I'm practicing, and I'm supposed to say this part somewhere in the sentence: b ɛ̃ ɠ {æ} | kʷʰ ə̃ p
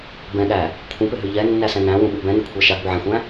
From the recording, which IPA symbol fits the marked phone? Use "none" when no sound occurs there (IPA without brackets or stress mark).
æ